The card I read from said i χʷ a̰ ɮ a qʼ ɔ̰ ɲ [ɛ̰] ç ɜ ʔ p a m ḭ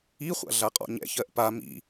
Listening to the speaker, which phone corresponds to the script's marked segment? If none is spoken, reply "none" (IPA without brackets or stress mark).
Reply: ɛ̰